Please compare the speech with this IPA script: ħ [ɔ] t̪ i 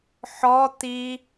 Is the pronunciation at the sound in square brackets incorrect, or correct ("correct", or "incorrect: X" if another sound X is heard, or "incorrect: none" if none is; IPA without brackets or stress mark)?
correct